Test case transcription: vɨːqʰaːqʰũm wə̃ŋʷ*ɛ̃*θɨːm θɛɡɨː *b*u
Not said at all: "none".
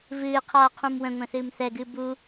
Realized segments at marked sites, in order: ɛ̃, b

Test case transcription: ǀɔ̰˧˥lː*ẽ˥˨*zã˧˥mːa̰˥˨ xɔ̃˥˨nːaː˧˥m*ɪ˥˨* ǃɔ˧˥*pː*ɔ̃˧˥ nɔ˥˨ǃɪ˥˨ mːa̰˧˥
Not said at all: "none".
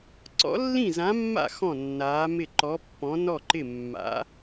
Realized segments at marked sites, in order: ĩ˥˨, ɪ˥˨, pː

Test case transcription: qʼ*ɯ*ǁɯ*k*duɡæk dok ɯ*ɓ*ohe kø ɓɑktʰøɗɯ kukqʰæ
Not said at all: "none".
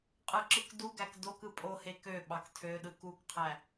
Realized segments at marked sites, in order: ɯ, k, pʼ

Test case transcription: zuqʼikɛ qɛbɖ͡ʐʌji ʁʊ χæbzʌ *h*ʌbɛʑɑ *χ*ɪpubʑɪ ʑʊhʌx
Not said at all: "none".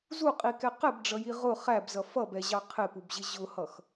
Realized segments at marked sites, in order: f, qʰ

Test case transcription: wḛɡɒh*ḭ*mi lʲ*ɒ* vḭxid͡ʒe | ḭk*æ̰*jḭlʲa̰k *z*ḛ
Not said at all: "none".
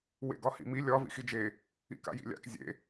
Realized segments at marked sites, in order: ḭ, ɒ, a̰, zʲ

